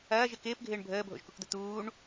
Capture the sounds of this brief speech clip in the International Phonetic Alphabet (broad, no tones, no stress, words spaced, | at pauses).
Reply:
ɐːʒɪ kɪːpɡʱɪːɳ bʱəːbʱo̰ʒkukd̪ə t̪uːɳ